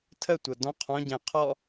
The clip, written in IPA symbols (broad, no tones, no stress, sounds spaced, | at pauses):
tʰ ə tʷ ɤ d ɔ̃ qʰ ɔ̃ ɟ ɛ̃ qʰ ɔ